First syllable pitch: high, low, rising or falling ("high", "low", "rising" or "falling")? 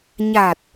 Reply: low